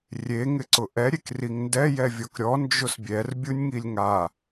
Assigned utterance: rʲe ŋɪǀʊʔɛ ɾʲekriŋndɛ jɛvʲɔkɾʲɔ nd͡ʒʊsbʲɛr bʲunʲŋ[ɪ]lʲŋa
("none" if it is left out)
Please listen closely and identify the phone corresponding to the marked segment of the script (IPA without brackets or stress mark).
i